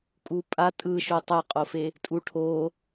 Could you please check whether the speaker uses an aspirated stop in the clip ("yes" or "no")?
yes